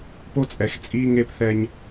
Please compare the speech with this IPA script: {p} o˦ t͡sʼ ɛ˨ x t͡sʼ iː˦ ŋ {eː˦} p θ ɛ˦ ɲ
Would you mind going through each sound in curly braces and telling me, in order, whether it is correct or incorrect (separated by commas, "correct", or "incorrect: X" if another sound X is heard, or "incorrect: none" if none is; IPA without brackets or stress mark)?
correct, correct